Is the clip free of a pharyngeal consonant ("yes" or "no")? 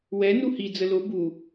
yes